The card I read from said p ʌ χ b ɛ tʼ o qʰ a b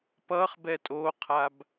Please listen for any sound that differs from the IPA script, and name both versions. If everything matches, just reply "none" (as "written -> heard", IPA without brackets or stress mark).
none